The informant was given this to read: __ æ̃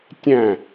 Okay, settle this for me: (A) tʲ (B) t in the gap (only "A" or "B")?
A